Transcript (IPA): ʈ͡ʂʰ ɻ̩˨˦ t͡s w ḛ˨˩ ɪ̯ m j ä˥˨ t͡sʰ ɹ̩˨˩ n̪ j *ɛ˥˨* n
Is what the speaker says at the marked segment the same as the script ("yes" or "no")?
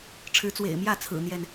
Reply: yes